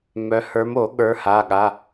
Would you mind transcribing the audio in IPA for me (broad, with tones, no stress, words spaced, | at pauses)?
mœ˨˦ hə˞˨˦mo˨˩˦ ɠə˞˨˦ha˩˧˩ɠa˩˧˩